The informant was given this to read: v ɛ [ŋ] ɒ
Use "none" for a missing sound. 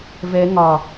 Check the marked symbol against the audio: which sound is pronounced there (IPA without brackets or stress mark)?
ŋ